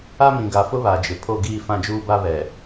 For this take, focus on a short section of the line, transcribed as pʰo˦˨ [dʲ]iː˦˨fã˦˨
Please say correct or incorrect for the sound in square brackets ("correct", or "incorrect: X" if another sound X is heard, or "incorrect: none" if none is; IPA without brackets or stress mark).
incorrect: ɡ